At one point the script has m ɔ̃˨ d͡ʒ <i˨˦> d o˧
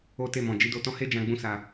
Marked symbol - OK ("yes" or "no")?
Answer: yes